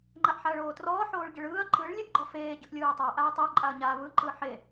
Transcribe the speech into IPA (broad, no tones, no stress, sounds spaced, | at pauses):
ŋ͡ǃ a ʔ ħ a ɐ̯ ɭ oː t r ɔː ħ oː ɭ ɟ ɯ ɭ ɯː ɐ̯ ǃ ɯ ɭ lʲ e ʔ ɡ͡ǃ ɔ f eː ɟ ɯ ʔ lʲ ɯː tˤ a ʔ a ɐ̯ tˤ o ǃʼ a ɐ̯ ɲ a v ɯ ǃ ɯ ħ e